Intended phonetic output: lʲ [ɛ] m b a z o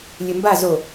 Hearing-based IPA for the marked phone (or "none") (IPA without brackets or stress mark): ɘ